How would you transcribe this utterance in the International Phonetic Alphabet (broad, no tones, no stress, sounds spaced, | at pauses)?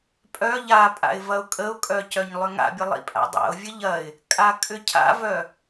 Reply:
pʼ œ ʎ a pʼ a̰ ɪ̯ v ɐ ʊ̯ kʼ ə ʊ̯ kʼ œ c œ ɲ lˠ ʏ ŋ a̰ bʲ ə lˠ ḭ pʼ a̰ dˤ a̰ ʊ̯ vʲ ə ʎ ɐ ɪ̯ | kʼ a kʼ ʏ cʰ a̰ v œ